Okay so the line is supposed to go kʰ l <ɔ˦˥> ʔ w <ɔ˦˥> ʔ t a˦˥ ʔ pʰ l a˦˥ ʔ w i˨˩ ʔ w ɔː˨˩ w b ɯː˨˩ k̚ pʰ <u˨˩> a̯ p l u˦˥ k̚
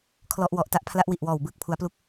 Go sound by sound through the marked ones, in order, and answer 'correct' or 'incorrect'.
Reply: correct, incorrect: ɔ˨˩, incorrect: u˩˦

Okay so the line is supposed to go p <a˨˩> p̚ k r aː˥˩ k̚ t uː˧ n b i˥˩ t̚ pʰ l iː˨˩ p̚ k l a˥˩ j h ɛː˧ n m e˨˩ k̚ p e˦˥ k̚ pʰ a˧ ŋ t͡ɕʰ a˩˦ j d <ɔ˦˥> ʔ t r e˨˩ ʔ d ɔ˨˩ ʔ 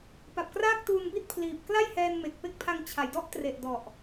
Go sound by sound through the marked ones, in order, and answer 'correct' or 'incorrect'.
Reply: correct, correct

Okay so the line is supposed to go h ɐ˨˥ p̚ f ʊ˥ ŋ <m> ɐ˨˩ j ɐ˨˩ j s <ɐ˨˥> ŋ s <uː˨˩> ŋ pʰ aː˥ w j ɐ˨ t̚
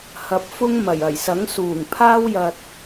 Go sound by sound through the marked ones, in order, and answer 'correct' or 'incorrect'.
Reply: correct, correct, correct

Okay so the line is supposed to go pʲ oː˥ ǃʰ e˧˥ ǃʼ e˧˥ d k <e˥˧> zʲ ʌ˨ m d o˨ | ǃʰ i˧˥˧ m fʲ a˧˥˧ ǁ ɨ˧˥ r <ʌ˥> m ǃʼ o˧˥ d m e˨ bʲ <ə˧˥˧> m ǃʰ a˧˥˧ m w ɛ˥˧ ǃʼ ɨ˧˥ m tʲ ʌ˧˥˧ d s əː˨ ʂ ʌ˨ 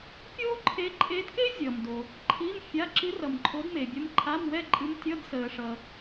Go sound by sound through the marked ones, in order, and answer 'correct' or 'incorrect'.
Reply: incorrect: e˥, incorrect: ʌ˨, incorrect: ə˧˥

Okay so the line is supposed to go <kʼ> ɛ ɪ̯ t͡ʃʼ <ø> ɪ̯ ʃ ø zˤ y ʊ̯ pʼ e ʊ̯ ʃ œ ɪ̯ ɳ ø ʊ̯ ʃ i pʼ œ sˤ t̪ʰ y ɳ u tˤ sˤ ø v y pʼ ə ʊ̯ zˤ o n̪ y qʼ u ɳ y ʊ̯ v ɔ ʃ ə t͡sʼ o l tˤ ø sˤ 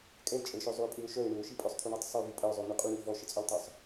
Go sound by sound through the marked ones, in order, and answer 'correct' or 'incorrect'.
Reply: correct, incorrect: ə

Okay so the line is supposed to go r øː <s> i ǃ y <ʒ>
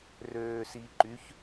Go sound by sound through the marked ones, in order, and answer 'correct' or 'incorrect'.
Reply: correct, incorrect: ç

